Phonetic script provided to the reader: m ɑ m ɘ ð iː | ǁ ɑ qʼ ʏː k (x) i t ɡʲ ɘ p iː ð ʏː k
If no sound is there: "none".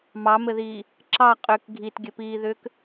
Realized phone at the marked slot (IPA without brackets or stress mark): ɡʱ